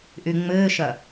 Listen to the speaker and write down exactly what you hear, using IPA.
ʔ y ŋ͡m ɘː ʃ ɐ

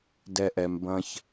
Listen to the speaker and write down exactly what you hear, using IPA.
d ɛ˧ ʔ ɛ˨ m b ɐ̃˦ ç

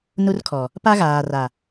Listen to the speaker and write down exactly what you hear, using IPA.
n u˦ r kʰ ɔ˨ | p a˦ ɣ aː˨ r a˨

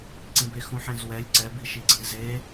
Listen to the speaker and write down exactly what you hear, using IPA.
ǀ ĩ b e x ũ ħ ẽ z w ɛ lʲ ǀ ɛ b i ʃ i ɡ͡ǀ ĩ z e

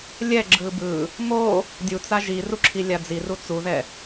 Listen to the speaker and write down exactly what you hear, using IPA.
lʲ ɛ ɡ͡ǁ ɯ b ɯ | m o | dʲ u t͡s a ʒ i r u ǁʰ i lʲ a d͡z i r u t͡s u ð ɛ

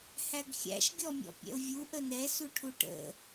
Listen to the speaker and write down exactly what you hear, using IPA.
h æ ɡ xʲ æ̰ ʃ ɡʲ ɔ mʲ ɔ̰ pʲ ɛ̰ ʊ̯ vʲ u ʔ ə n ɛ s u ʈʰ u ʈ ə̰

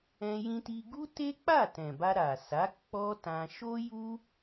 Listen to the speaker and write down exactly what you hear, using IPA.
ɛ̃˧ j ĩ˧ t i˧ ɡ u˦ t e˦ k͡p a˦˨ t ɛ̃˨ b a˧ ɾ a˨ s a˨˦ k͡p ɔ˦ t ã˧ ʃ o˦ j u˦

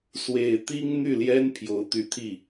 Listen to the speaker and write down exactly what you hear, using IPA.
s w e˨˩ ɪ̯ t̪ i˥ ŋ n̪ y˥˩ l j ɛ˥ n pʰ j o˧˥ ʊ̯ t̪ y˧˥ t̪ʰ i˥˩

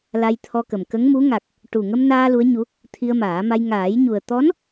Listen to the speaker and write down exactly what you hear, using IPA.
l a˧ j t̪ʰ ɔ˧ k ə˨˩ m k ə˧˥ ŋ m u˧˥ ŋ a˨˩ k̚ | ʈ u˨˩ ŋ ə˧ m n aː˧ l u˧˥ ə̯ ɲ u˧˥ | t̪ʰ i˧ ə̯ m aː˨˩˦ m a˧ j ŋ aː˨˩˦ j ɲ u˨˩ ə̯ t̪ ɔ˧˥ n

